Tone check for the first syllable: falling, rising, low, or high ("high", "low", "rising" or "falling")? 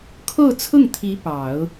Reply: falling